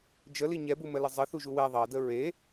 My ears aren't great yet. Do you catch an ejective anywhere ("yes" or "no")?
no